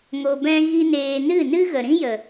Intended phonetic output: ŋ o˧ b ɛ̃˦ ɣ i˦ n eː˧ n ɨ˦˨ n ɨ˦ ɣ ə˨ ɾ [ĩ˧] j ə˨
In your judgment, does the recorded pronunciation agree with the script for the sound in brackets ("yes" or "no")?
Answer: no